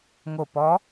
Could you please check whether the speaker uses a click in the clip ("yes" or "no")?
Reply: no